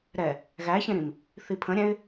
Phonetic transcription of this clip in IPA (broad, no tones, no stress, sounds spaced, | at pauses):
ɾ ɛ | ɣ æ ç ẽ ɾ ĩ m | θ i pʰ ə̃ ɾʲ ɛ̃ ɪ̯